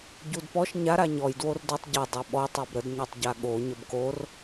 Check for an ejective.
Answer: absent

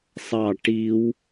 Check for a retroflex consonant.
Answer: present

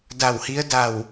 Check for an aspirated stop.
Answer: absent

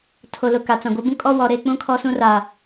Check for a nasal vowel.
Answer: present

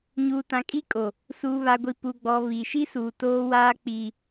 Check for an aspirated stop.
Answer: absent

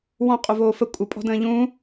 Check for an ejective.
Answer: present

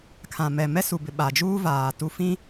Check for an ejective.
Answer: absent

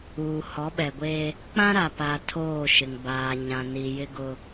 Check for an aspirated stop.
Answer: present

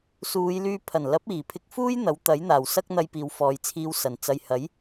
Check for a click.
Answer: absent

